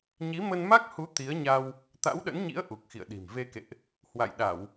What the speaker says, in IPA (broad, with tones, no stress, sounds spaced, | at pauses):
ɲ i˨˦ m ə˧ n m a˦˥ k̚ h u˨˦ t̪ i˨˦ ə̯ ɲ a˧ w | t̪ a̰˧˥ w ɗ ə̰˧˥ n ɲ ḭ˧˥ ə̯ ʔ u˨˩ k̚ x ḭ˧˨ ə̯ ɗ i̤˨˩ m v e˧ k ḛ˧˨ ʔ | h w a̰˧˨ j ɗ a˧˩˨ w